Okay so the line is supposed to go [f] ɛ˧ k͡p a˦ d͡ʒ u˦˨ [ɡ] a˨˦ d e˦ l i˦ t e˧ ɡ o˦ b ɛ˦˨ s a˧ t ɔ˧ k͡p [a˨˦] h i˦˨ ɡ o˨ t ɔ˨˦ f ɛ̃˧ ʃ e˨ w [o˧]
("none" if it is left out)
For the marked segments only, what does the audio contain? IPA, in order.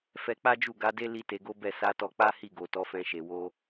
f, ɡ, a˦, o˧

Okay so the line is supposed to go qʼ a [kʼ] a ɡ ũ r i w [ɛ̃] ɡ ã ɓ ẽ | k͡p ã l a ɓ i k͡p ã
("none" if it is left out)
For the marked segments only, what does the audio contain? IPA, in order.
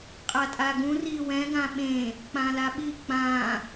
tʼ, ɛ̃

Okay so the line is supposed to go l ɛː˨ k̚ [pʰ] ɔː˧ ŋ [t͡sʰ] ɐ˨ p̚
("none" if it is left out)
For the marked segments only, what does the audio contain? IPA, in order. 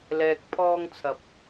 pʰ, t͡sʰ

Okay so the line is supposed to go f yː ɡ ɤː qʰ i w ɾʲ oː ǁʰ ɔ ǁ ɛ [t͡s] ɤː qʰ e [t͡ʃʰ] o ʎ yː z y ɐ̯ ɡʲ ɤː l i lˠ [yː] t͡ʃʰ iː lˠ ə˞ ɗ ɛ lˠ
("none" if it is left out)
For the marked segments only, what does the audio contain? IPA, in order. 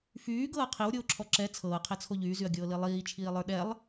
t͡sʰ, t͡sʰ, iː

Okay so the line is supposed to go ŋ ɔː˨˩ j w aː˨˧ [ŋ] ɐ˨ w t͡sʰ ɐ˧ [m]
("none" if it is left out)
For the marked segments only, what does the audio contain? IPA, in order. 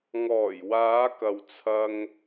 k, ŋ

